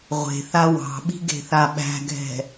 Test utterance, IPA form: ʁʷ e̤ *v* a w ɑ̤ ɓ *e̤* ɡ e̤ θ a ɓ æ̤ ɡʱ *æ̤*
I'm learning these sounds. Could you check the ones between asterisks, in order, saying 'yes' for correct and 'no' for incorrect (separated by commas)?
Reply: no, no, no